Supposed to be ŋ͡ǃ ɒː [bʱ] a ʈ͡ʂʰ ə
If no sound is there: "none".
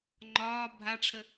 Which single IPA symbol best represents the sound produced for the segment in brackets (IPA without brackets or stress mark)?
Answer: bʱ